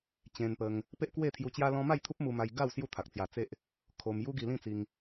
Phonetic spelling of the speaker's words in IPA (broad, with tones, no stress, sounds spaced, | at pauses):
t͡ɕ ẽ˧ n p ə˧ ŋ | p e˦ ʔ k w e˥˧ t̪ʰ j u˧ t͡ɕ j a˦ l ɔ̃˦ m a˥˧ j t̪ʰ u˦ p̚ m u˧ m a˧ j ɡ a˥˧ w s j u˥˧ t̪ʰ a˨ k̚ t͡s j a˧ t͡s e˦ ʔ | kʰ o˧ m j u˦ ɡ i˧ l ĩ˥˧ t͡s i˧ ŋ